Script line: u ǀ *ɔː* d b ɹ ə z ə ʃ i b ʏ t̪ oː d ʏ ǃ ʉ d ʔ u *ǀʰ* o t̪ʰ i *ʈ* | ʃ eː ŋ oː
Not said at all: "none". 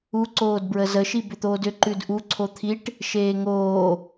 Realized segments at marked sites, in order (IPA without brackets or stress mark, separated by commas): oː, ǀʰ, ʈ